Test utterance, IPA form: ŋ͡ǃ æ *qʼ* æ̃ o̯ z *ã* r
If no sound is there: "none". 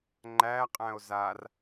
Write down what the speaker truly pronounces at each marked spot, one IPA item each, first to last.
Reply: qʼ, a

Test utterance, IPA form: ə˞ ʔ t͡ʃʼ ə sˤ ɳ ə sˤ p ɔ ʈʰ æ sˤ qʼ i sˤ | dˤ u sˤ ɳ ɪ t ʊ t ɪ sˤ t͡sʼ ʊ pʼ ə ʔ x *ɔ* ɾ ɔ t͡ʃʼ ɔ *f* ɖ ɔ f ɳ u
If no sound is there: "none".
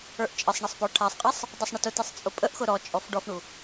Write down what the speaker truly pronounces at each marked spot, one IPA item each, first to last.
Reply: ʊ, f

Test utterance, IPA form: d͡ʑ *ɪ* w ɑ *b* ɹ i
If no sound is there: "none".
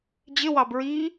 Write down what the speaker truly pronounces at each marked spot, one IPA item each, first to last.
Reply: ɪ, b

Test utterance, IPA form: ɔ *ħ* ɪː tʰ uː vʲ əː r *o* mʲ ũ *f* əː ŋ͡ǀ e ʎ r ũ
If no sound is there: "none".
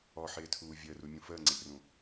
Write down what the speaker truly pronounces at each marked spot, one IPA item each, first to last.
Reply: ħ, u, f

